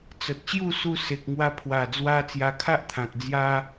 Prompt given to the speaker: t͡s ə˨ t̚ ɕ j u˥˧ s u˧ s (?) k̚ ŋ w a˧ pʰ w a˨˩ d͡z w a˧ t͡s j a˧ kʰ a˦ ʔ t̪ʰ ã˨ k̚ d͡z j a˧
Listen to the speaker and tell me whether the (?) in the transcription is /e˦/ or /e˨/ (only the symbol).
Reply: e˨